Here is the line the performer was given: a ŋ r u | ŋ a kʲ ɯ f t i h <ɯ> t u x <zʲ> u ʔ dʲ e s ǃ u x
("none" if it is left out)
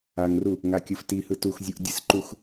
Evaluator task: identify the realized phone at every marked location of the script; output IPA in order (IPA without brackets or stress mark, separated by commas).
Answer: ɯ, zʲ